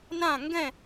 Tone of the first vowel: falling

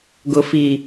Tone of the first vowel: low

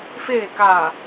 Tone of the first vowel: low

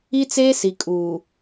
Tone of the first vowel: high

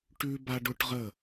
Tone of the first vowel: high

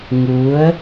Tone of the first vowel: rising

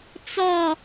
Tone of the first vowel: falling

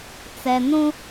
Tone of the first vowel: low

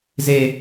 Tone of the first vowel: high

